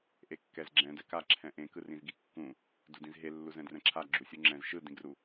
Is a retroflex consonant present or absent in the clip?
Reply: absent